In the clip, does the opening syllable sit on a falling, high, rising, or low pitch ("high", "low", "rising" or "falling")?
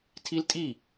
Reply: high